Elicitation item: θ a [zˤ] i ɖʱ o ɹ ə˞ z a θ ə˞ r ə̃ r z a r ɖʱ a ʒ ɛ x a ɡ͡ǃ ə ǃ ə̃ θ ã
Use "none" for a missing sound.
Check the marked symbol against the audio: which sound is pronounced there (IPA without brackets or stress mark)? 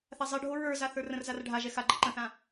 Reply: zˤ